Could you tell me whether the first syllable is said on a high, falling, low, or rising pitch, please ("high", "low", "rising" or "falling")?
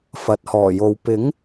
low